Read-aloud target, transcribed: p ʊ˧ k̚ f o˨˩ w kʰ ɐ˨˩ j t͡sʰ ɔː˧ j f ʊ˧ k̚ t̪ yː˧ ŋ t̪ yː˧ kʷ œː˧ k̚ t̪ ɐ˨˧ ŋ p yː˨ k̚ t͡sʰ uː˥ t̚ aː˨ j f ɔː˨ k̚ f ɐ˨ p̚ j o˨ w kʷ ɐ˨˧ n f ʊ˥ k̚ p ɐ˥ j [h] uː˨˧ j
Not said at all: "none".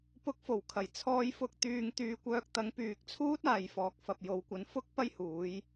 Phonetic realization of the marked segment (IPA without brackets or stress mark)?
h